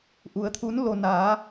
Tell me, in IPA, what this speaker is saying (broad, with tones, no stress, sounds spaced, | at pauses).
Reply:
ʔ u˩˧ ə̯ t̪ʰ u˧˥ n l o˧ n aː˩˧